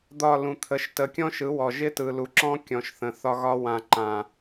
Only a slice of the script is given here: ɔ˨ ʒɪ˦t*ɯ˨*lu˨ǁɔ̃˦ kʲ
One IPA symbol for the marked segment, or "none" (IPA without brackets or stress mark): ɯ˨